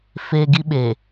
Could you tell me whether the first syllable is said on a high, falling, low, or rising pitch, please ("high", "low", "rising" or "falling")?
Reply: low